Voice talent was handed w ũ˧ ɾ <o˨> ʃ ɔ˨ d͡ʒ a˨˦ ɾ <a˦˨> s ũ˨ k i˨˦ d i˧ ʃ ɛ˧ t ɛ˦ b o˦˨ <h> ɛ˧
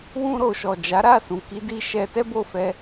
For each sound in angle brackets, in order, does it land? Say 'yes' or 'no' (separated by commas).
yes, yes, no